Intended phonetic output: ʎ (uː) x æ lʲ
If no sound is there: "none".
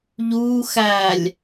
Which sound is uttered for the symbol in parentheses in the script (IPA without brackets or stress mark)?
uː